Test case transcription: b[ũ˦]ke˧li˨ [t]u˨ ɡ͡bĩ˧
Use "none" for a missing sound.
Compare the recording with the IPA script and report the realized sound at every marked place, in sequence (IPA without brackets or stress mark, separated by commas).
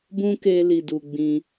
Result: ũ˦, d